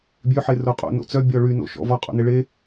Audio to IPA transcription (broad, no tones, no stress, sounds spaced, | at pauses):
bʲ ø ħ e r o qʼ o̰ n o̰ t͡s œ bʲ ɔ ɭ y n o̰ ʃ ɔ̰ v ɔ qʼ o̰ n e ɭ e